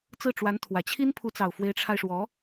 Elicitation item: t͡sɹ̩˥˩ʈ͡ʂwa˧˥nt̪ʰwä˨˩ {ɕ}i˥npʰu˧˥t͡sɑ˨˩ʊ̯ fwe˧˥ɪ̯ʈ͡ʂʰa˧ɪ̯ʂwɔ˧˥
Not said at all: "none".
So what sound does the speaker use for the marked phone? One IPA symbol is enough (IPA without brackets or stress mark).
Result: t͡ɕʰ